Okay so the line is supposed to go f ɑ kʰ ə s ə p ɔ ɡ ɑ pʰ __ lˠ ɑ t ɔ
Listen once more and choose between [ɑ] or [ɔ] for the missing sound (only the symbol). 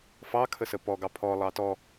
ɔ